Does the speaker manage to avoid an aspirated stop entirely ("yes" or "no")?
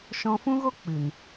yes